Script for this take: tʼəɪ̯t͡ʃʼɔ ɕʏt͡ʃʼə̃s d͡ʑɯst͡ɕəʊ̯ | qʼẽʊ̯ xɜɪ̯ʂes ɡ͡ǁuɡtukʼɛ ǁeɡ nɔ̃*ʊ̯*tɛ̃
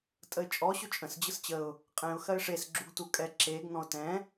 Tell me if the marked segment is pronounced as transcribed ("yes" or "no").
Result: yes